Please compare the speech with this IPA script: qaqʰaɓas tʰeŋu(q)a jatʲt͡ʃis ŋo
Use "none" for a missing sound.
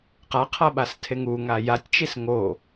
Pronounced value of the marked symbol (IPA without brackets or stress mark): ŋ